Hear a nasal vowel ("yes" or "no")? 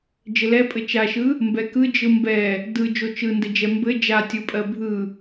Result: no